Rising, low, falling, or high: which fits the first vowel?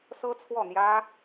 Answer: high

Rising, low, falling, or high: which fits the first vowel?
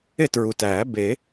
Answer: falling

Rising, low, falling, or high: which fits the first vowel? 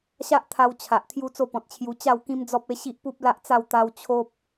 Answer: high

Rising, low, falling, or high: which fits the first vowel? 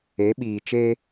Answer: rising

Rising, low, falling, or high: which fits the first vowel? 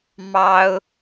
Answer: high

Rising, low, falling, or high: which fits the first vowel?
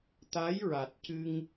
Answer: rising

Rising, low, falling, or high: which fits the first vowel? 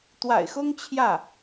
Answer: low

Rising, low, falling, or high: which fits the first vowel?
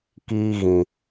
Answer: high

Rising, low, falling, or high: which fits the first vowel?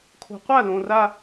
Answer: low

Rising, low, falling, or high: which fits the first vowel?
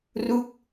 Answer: falling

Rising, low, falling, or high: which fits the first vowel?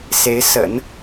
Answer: rising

